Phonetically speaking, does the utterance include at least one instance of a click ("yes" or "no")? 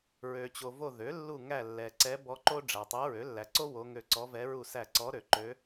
yes